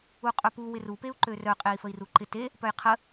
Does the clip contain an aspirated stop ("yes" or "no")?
yes